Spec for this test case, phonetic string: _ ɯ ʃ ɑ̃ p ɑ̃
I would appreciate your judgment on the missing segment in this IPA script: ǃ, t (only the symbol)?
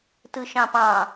t